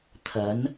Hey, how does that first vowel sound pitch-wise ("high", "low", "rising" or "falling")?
rising